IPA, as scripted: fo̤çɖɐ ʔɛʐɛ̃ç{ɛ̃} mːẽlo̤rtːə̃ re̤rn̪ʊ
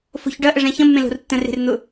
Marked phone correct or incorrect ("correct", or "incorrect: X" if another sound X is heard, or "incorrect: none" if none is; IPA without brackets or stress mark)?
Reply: incorrect: ə̃